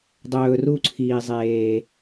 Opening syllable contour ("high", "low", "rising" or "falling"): low